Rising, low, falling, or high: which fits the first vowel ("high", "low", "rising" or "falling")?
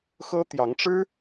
high